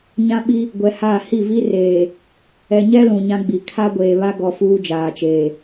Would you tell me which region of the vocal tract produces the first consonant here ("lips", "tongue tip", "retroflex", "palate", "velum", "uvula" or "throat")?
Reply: palate